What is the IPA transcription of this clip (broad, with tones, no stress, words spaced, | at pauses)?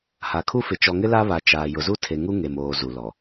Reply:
ha˨kʰu˦fɪ˨ t͡ʃɔ˨ŋɪ˦ la˦βa˨ t͡ʃaː˨ jʊ˨zu˦tʰe˨ ŋu˦ ŋe˨moː˨ zu˨lɔ˨